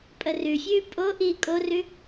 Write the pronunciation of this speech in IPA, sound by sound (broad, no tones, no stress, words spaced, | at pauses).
pʼərʉfʲʉː pʼo ʔiːkʼorʉ